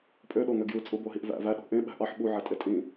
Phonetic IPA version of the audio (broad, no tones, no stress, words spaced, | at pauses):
pʼøɗoŋø ɡjɯt͡sʼuboɦiʔ væ̰ væɗo̤ ʔẽɓæ̤ ʔɑħ ɓuʕætʼe tʼĩ